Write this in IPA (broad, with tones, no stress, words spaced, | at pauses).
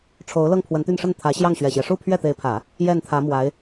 ʈ͡ʂʰo˧˥ʊ̯lɤ˥˩ŋpʰwə˧˥nt̪y˥˧n ʂə˥˩nt̪ʰä˧˥ ɕjɑ˥˩ŋɕɥɛ˨˩ɕjɛ˦ ʂu˥˧pʰɥɛ˥˩t̪e˧˥ɪ̯pʰä˨˩˦ | jɛ˥˩nt̪ʰä˧˥mwa˧˥ɪ̯